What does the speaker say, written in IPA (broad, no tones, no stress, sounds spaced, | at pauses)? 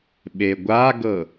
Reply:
ɓ e ɡʷ a ɡ ɤ